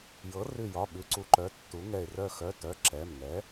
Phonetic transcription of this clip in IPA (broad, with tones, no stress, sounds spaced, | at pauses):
j ɤ˩˥ r ʉ˧˩ j ɒ˩˧˩ ɓ ʉ˩˥ ǀ u˩˥ ǃ œ˩˧˩ tː u˩˥ ŋ ɛ˧˩ e̯ r œ˧˩ x œ˩˧˩ t œ˩˧˩ ǁ ɛ˩˧˩ m ŋ ɛ˩˥